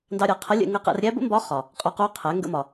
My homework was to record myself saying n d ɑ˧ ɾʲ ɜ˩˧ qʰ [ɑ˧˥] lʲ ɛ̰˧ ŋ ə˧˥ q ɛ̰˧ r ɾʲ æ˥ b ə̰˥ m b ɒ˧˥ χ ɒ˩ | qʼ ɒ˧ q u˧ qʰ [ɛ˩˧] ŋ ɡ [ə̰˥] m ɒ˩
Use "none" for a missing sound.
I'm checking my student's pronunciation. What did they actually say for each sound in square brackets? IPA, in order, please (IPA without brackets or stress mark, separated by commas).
ə˧˥, ɛ˩˧, ə̰˧